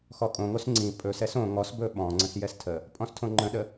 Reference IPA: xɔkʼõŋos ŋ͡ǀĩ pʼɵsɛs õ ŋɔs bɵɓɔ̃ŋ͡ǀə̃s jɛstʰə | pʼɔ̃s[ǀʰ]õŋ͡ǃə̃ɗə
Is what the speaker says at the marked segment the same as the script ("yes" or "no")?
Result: no